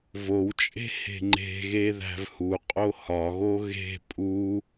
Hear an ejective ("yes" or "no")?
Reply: yes